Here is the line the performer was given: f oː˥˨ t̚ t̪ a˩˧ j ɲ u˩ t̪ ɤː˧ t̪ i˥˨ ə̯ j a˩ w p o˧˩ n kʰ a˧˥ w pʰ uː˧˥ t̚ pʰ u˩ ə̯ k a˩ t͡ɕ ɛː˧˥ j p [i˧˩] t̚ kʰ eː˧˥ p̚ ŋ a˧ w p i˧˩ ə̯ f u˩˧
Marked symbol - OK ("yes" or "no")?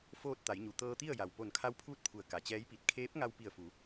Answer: yes